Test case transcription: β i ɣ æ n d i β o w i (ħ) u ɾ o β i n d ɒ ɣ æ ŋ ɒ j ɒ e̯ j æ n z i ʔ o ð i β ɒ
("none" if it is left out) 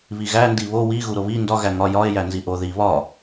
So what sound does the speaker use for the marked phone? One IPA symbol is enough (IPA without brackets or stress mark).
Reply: ɣ